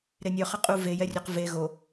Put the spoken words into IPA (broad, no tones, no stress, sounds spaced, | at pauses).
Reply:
ɾ e nʲ œ χ ə qʼ u v e j ɛ rʲ œ q v e ɣ o